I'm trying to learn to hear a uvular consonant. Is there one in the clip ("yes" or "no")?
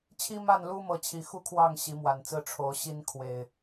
no